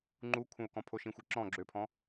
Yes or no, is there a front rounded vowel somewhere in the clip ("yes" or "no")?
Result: yes